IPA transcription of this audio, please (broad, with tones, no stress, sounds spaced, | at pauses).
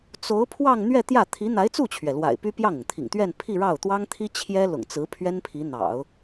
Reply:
t͡s o˧˥ ʊ̯ pʰ w ɑ˥˧ ŋ n̪ ɥ ɛ˥˧ t̪ j ä˥˩ t̪ʰ i˧˥ n̪ a˧˥ ɪ̯ t͡s u˥˩ t͡ɕʰ ɥ ɛ˩ l w a̰˨˩ ɪ̯ p y˥ p j ɑ˥˩ ŋ ʊ˩ ŋ t̪ʰ ḭ˨˩ ŋ t̪ ɥ ɛ˥˧ n pʰ i˥˧ ɻ ɑ˥˩ ʊ̯ t̪ w ɑ˥ ŋ t̪ʰ i˥ t͡ɕʰ j ɛ˥ l ʊ̰˨˩ ŋ t͡s ɹ̩˧˥ pʰ ɥ ɛ˥ n pʰ i˧˥ n̪ ɑ̰˨˩˦ ʊ̯